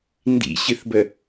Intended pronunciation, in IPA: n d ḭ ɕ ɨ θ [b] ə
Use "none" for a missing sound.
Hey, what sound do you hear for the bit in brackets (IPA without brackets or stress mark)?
b